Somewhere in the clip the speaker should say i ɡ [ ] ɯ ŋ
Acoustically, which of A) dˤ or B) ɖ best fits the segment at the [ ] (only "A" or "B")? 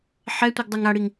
A